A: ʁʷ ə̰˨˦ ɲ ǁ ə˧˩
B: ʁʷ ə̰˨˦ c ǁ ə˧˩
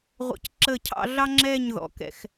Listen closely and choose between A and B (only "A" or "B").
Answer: B